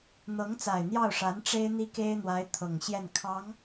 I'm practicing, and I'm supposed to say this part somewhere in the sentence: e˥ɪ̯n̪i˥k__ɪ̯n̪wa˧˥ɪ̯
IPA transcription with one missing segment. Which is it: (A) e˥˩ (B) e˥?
B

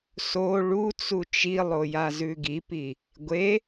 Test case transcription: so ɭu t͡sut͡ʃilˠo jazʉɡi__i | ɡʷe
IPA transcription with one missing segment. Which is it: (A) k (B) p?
B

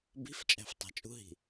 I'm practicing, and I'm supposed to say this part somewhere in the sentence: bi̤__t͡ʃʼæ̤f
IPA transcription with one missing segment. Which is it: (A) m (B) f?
B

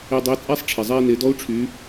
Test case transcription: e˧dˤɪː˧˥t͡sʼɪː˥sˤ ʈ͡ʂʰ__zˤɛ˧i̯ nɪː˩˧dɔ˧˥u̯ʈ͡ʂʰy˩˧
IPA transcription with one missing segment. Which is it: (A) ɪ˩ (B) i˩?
A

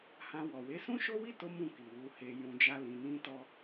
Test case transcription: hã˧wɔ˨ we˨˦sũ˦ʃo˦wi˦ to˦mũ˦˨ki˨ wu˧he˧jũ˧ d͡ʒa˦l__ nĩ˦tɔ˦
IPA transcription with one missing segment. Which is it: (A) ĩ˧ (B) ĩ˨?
A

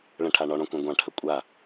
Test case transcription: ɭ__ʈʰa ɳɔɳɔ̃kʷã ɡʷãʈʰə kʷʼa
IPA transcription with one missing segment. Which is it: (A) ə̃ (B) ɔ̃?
A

